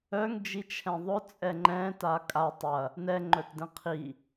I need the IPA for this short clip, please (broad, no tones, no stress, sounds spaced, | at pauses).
œ ŋ d͡ʒ i t͡ʃʰ ɛ̃ ðˤ ʊ t͡sʼ ɛ ŋ͡ǃ ɛ̃ t a kʼ a tˤ ɐ | n ɛ ŋ͡ǃ œ t d ɛ̃ qʰ i